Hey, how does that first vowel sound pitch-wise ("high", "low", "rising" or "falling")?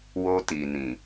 high